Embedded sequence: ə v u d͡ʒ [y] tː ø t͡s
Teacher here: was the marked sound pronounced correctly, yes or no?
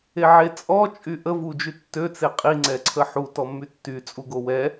yes